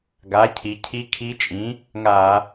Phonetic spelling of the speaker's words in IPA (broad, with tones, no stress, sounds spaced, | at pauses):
ɡ a˩˥ cʰ i˩˧ cʰ i˧˥ kʰ i˧˥ t͡ʃʼ ĩ˩˥ | ŋ a˧˩˧